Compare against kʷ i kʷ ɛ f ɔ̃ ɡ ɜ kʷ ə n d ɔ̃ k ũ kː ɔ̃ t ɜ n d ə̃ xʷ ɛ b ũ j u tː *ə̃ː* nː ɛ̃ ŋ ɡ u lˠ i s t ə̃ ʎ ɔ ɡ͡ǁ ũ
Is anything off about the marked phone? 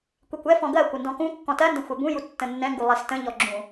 yes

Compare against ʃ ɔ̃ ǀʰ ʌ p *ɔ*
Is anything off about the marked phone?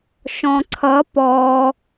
no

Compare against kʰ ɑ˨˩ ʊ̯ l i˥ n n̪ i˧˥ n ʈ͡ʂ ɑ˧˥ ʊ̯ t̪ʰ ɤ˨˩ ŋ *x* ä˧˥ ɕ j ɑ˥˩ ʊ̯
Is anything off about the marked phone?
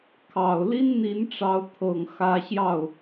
no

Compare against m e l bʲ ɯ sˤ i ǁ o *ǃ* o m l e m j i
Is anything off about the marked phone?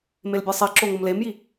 yes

